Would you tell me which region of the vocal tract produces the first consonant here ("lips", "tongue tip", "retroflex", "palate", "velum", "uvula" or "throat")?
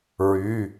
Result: tongue tip